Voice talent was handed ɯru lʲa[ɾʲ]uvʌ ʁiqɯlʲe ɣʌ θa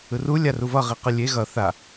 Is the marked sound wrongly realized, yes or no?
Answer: yes